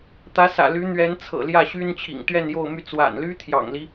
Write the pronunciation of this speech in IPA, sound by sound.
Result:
t̪ ä˧˥ s ä̰˨˩ l y˧˥ n̪ ɥ ɛ˧˥ n t͡sʰ ɤ̰˨˩ l j ä˥˩ ɕ y˥ n t͡ɕʰ ḭ˨˩ ŋ t̪ ɥ ɛ˥˧ n j o˥˧ ʊ̯ m y˥˩ t͡s w a̰˨˩ n l y˥ t̪ʰ j ɑ̰˨˩ ŋ l i˦

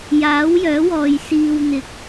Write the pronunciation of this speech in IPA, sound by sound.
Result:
j aː˨˥ w j œː˨˥ w ɔː˨ j s iː˨ w n̪ ɪ˨˥ k̚

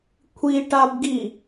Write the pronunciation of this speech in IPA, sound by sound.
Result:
kʷʰ i ʈ a b ɡ i

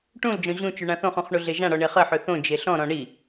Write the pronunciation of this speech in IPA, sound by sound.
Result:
ʈ ũ l d͡ʒ ɔ̃ ʑ ũ t͡ʃ y ɳ ã θ õ χ ũ χ ɳ u ɮ e ʒ ã ɽ ɔ ɳ e χ ə ħ ø θ õ d͡ʒ e ɬ ɔ̃ ɾ ɔ̃ ɳ i

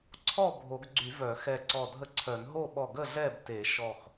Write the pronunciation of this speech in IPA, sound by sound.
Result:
ǀʰ ɔ˥˨ bʱ o˨˩˦ ɡ ɡ͡ǀ y˨˩˦ v œ˨˩˦ x ɛ˧˩ ǀ ɔ˧˩ dʱ ə˥˨ ǀʰ œ˨˩˦ n ɦ o˥˨ ɓ ɔ˧˩ ɡ ə˥˨ ɮ ɛ˥˨ b t e˨˩˦ ʃ ɔ˧˩ x

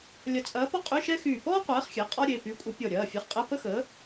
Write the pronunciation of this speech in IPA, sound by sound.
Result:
lʲ ɐ˧˩ t͡sʼ ɐː˨˥ p ɔ˥ qʼ y˧˥˧ ʃ ɛ˥ x yː˧˩ p ɔː˥ qʷ ɛː˨˥ χ xʲ ɛ˩˧˩ qʼ ɔ˥ ɾʲ e˩˧˩ p y˨˥ kʷʼ ə˨˥ pʲ ɔ˧˩ ɾʲ ɐː˩˧˩ fʲ ɛ˨˥ χ qʼ ɛ˧˥˧ p ə˥ x əː˨˥

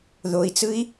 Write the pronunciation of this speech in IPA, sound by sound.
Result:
ð o i̯ t͡s ɯ i̯

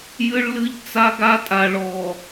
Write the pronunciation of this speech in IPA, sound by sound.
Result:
j ɨ˦ ɭ l ɨ˦ ʎ t͡s a˦ ɡ a˦ tʼ a˨ ɭ ɔ˨

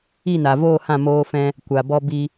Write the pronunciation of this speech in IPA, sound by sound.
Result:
i˦˨ n a˨ v oː˦˨ h ã˦˨ m oː˧ f ɛ̃˧ | kʷ a˨ b ɔ˧ b i˧

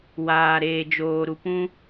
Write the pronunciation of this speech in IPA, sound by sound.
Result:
w aː˨ ɾ eː˨ d͡ʒ oː˨ ɾ u˨ p ũ˧

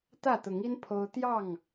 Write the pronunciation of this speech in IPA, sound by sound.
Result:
t̪ ä˥˨ t̪ ʊ˨˦ ŋ i˦ n pʰ o˦ ʊ̯ t̪ j ɑ˥˨ ŋ

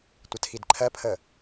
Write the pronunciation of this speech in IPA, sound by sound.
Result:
tʷ ə tʰ i d ǃʰ ɜ pʰ ə

